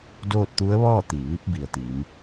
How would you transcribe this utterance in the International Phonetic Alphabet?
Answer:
d oː˥˨ t̚ t̪ u˧˥ ə̯ ʋ ɔː˥˨ t̪ i˩ ʋ i˧˥ p̚ b i˩ ə̯ t̪ i˩˧ m

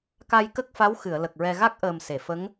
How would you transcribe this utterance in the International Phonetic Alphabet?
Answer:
k a˧ j k ə˦˥ k̚ f a˧˥ w x ɨ˨˩˨ ə̯ l ə˨˩ k̚ ɹ ɛ˧ ɣ a˦˥ k̚ ʔ əː˨˩ m s e˨˩˨ f ə˧˥ ŋ

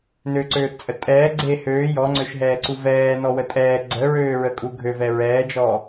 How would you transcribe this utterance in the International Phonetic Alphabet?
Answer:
n ø ǀ øː θ t͡sʼ ə tʼ ɛː ɡ͡ǀ e h øː j ɔ ŋ͡ǀ ø ʃ ɦ ɛː ǀ u v ɛː n ɔ w ə tʼ ɛː ɡ͡ǀ ə ɹ øː ɹ ə kʼ u ɡʱ ø v ɛ ɹ ɛː d͡ʒ ɔː

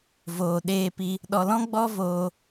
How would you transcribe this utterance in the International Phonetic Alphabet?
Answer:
v oː˨ ɗ eː˧ p i˧ | ɗ ɔ˨ l ɔ̃˦ ɡ͡b ɔ˦ v oː˧

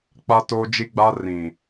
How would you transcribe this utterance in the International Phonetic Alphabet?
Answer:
k͡p a˦ t oː˦ d͡ʒ i˦ ɡ͡b a˦ r ĩ˨

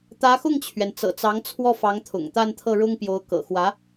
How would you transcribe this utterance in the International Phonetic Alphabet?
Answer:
t̪ ä˧˥ x ʊ˥˩ ŋ t͡ɕʰ ɥ ɛ˩ n t͡s ɤ̰˨˩ t͡s ɑ˧˥ ŋ t͡sʰ w ɔ˥˩ f ɑ˧˥ ŋ t̪ʰ ʊ̰˨˩ ŋ t̪ a˥˧ n t̪ʰ ɤ˥˩ ɻ ʊ˥ ŋ p j o˧˥ ʊ̯ k ɤ̰˨˩ x w ä˧˥

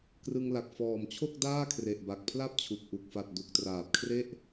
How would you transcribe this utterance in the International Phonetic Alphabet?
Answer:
k r ɯ˧ ŋ l a˨˩ k̚ f ɔː˨˩ m t͡ɕʰ o˥˩ k̚ d aː˥˩ kʰ r e˨˩ ʔ b a˨˩ k̚ pʰ l a˥˩ p̚ t͡ɕʰ u˨˩ k̚ ʔ u˨˩ k̚ f a˨˩ t̚ d u˨˩ k̚ t r aː˨˩ p̚ kʰ r e˥˩ ʔ

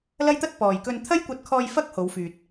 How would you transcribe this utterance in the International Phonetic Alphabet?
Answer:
l ɐ˥ j t̪ ɐ˥ t̚ p ɔː˨ j k ɵ˧ n t̪ʰ ɐ˥ j kʷ ɐ˧ t̚ kʰ ɔː˧ j f ɐ˥ k̚ h o˨˧ w f yː˨ t̚

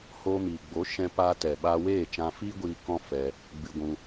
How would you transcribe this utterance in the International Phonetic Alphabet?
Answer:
h oː˧ m iː˨ ɡ͡b o˨˦ ʃ ɛ̃˧ p a˧ t ɛ˨ ɓ a˧ w eː˦˨ t͡ʃ ã˧ f i˦ ɡʷ iː˧ k ɔ̃˦ f ɛ˧ | ɡ͡b ɨ˧ ɡʷ ũ˧

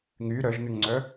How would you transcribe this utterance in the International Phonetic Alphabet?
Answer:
ŋ y ɾ œ ʒ n ʉ ŋ ŋ͡ǀ œ

